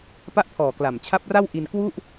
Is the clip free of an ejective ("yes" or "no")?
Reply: yes